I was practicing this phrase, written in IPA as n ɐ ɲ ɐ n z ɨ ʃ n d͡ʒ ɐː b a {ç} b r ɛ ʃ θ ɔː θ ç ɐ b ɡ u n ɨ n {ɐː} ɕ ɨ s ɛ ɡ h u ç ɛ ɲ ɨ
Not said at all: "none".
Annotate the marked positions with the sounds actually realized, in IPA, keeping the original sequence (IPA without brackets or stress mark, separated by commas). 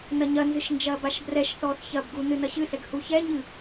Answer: ʃ, ɐ